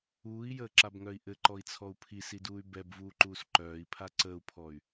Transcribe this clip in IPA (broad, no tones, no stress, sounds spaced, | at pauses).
uː i̯ j əː ǁ a b ŋ œ i̯ ʔ ɘ ǃ ɔ i̯ t͡sʰ ɔ u̯ pʰ i s i d uː y̯ b ɛ b v uː ǃ uː s ǃ œː i̯ pʰ a ǀ əː u̯ pʰ ɔ y̯